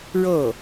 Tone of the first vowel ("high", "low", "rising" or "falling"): falling